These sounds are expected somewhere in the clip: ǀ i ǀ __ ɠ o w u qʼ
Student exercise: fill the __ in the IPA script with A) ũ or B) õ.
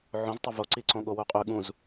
B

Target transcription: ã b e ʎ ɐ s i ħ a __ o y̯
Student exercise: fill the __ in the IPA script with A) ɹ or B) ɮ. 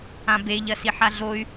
B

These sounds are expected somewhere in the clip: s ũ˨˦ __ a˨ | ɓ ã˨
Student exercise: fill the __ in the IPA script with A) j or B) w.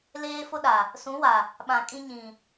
B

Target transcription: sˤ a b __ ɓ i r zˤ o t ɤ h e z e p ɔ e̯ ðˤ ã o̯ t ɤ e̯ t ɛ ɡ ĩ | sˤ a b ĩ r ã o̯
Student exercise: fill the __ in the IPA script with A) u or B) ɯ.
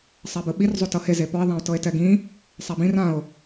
B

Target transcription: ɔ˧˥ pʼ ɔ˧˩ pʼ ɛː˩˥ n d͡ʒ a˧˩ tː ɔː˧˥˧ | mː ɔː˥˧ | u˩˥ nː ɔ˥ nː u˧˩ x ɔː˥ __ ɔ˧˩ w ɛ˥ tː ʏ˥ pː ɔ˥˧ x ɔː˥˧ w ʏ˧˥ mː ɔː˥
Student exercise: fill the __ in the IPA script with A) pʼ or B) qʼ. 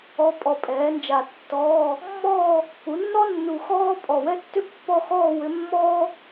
A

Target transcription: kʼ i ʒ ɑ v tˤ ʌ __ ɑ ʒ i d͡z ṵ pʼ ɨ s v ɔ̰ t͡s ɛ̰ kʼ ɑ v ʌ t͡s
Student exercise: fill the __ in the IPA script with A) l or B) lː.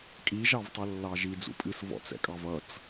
B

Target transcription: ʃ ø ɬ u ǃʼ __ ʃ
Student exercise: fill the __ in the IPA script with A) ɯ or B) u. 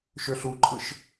A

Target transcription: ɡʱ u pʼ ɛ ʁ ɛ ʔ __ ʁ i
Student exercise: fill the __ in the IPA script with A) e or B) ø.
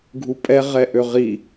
B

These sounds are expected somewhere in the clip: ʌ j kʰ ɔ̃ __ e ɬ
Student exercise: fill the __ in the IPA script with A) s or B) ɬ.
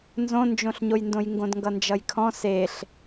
A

